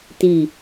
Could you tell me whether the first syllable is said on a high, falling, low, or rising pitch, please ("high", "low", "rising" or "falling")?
low